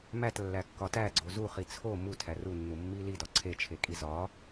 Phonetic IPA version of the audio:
m æ t lː æ kː ɒ t æ ɡ͡ǀ o z u χ i t͡sʰ o m u tʰ æ r u nː u mː i l i d ɒ ǀʰ e t͡ʃʰ e kʼ i z ɒ

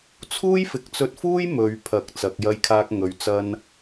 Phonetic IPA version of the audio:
t͡sʰ uː˥ j f ɪ˨ k̚ t͡s ɵ˧ t̚ f uː˥ j m ɵ˨˧ ɥ pʰ ɐ˨ k̚ t͡s ɐ˨˥ k̚ j ɐ˥ j kʰ aː˥ k̚ ŋ ɵ˨˧ ɥ t͡s ɐ˥ n

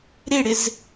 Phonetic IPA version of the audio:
ɾ e ɽ ɪ z

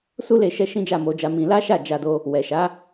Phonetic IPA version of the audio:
s u˦ l e˧ ʃ ɛ˧ ʃ ĩ˦ d͡ʒ a˦˨ m o˧ d͡ʒ a˧ m ĩ˧ l a˦ ʃ a˦˨ d͡ʒ a˧ d o˧ | w ɛ˨ ʃ a˨˦

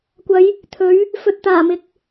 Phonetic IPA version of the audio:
kʷ ɐ˨˧ j | t̪ʰ ɵ˨˥ ɥ | f ɵ˨ t̚ t̪ aː˨˩ m ɪ˨ k̚

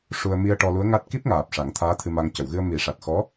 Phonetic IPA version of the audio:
ʂ u˧ ə̯ m i˧ ə̯ ʈ ɔ˧ l u˧˥ ə̯ ŋ a˦˥ t̚ k i˦˥ p̚ ŋ aː˨˩ p̚ ʂ a˨˩˦ ŋ t̪ʰ aː˧˥ t̪ʰ ɨ˧ m a˧ ŋ c ə˨˩˨ w ɣ ɨ˧ ə̯ m i˨˩˦ ʂ a˨˩ t̚ x ɔ˧˥

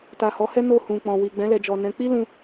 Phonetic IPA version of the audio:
t a˨ h ɔ˨˦ h ɛ˦ n o˦˨ h ũ˨ k͡p ɔ̃˨ w i˨ ɡ͡b ɛ̃˨˦ l ɛ˧ d͡ʒ ɔ˨ n ɛ̃˨˦ k͡p i˦ l ũ˧

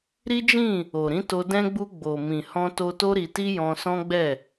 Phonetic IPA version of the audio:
ɾ i˦ d͡ʒ ĩ˦˨ | o˨ ɾ ĩ˨˦ t o˧ d ɛ̃˧ ɡ͡b u˧ ɡ͡b o˨ m ĩ˨ h ɔ̃˧ t o˧ t o˦ ɾ i˧ t i˦ j ɔ̃˧ s ɔ̃˦ ɡ͡b ɛ˦˨

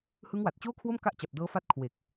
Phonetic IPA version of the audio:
h ɯ˦˥ ŋ w a˨˩ t̚ t͡ɕ oː˥˩ kʰ w o˥˩ m k a˥˩ ʔ t͡ɕ a˨˩ p̚ d ɤː˦˥ f a˦˥ t̚ kʰ w e˨˩ k̚

